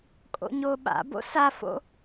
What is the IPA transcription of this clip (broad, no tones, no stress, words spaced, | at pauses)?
kʼo̰ɲoɓa̰bo̰ safo̰